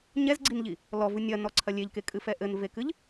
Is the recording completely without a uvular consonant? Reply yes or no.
yes